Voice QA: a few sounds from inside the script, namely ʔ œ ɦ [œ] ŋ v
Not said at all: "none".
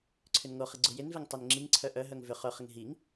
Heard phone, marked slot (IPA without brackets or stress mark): œ